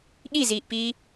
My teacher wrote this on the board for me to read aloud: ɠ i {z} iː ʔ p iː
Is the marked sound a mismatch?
no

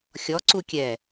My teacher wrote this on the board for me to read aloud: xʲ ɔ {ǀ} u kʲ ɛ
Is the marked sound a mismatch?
no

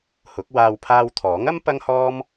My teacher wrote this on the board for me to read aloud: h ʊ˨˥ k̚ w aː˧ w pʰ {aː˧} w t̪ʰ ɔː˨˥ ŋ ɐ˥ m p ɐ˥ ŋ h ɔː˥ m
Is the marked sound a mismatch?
no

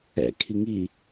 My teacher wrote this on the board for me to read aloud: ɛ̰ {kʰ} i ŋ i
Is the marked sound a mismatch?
no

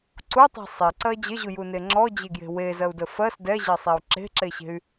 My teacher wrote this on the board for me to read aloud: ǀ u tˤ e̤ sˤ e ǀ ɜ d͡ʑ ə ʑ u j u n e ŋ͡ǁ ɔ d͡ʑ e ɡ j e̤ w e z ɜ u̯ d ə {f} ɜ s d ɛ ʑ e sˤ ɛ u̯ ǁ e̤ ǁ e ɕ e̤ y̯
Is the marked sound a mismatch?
no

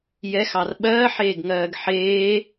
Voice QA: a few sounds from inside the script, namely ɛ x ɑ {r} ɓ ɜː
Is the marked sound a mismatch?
no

